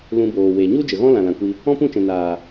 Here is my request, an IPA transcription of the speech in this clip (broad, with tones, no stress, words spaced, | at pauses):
lũ˧boː˨ we˨ ɲu˦ d͡ʒə˨ɣɔ̃˦lã˨ lã˨kʷi˧ | ɔ̃˦pũ˦˨t͡ʃɛ̃˨ naː˨